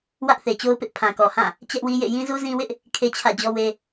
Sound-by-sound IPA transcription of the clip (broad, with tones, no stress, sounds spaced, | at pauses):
w ä˦ ʔ θ e˨ t͡ɕ o˦ ʊ̯ p ɪ˦ ʔ pʰ ã˨ k ɔ˨ h ã˦˨ | t͡ɕ ɛ˦ ʔ w i˦ j ḛ˦˨ j ĩ˦ z u˦ z ĩ˦ w ɪ˦ ʔ | kʰ e˦ t͡ɕʰ ä̰˦˨ d͡ʑ ɔ˦ w e˦